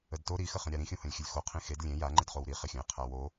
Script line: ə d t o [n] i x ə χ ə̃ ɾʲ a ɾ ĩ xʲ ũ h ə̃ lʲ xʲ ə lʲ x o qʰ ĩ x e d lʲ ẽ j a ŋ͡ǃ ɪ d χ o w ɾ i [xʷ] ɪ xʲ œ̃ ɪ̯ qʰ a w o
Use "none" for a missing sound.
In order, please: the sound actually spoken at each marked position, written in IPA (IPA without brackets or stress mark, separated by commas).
ɾ, χ